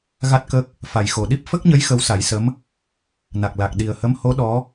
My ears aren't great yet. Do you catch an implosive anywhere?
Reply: yes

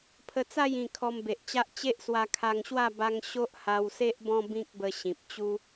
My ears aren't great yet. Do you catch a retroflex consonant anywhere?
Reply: no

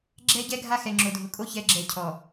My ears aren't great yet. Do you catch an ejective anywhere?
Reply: yes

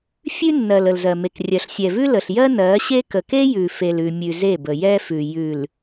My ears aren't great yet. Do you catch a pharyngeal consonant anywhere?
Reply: no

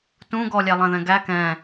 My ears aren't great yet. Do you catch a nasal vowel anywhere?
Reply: yes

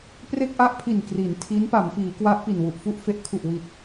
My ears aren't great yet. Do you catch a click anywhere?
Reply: no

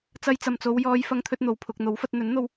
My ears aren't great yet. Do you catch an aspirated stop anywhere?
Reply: yes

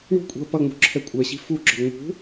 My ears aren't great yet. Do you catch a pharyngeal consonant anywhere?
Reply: no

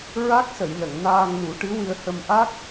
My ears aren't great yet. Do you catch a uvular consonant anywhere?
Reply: no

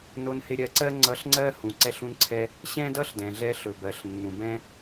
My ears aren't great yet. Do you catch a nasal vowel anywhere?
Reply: yes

